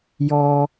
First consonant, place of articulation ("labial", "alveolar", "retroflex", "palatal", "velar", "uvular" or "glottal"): palatal